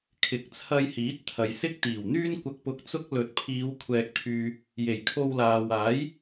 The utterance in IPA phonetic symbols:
kʰɪ˨˥k̚t͡sʰɐ˧jhiː˨˥t̚ t̪ʰɐ˨jsɪ˥k̚ t̪iː˨˩wn̪yː˥nkʷɐ˧k̚pʊ˧k̚ t͡sʊ˥k̚ lɵ˨˥t̚pʰiː˨˧w kʷʰɛː˨k̚t̪ʰyː˨ | je˨˩jkʰo˧w laː˨waː˨˥j

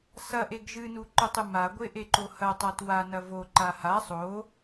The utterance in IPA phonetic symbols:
sɐʔeɡ ʒɨnuǃotˤɨ maɡʷeʔeǃo hɐtˤat wanɐ voǃa ha sˤo

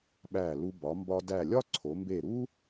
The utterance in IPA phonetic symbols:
ɓæ˧˩lu˧ bɒ˩˧mbɒ˧dæ˧˩lʲɒ˥ ǀʰo˩˧mbe˧˩ɾu˥

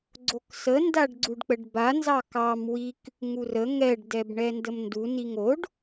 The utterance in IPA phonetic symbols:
ɡ͡ǀoksə ndaɖɡ͡ǀuɖk͡pəɖba nzɑkɑm wik | ŋurə ŋɛɖ dɛbɳɛndəmndu niŋoɖ

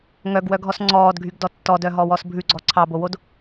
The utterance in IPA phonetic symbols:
ŋœɡwœɡʱɔs ŋ͡ǀɔːdɡʱyɡdɔ tːɔdœɦɔwɔs bʱʉɡ͡ǀɔ ǀʰɑbowod

